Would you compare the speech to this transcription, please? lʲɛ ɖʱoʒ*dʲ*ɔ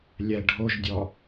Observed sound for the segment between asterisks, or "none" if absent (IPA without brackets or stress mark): dʲ